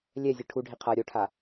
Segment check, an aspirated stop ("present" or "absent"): present